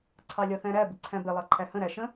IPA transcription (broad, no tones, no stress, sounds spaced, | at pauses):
ǀʰ ɑ lʲ ɒ θ æ̃ ɾ æ b ɪ ǀʰ æ̃ b ɪ lˠ ɑ ǃʰ æ h ə̃ ɾ æ ʃ ə̃